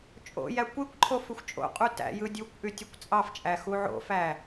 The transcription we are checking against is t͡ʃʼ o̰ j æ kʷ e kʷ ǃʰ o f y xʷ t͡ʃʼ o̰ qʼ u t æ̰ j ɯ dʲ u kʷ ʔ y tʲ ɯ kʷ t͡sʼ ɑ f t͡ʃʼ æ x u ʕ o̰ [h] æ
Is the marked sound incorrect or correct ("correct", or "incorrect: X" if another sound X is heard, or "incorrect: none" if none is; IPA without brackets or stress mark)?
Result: incorrect: f